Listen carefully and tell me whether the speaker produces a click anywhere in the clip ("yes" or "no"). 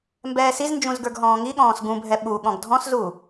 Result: no